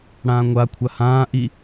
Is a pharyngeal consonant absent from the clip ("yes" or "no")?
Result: yes